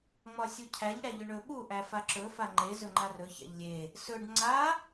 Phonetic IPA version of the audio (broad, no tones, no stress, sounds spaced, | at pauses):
ŋ͡m ɒ sʲ u cʰ æ ʎ ɽ æ ʎ ɵ ɳ ɵ ɓ u ʔ æ f a ǁ ɵ f a ŋ͡ǃ e z ɵ ŋ͡ǃ a r ɵ ç æ̰ ʎ lʲ e | s ɵ ɖ ŋ͡ǀ a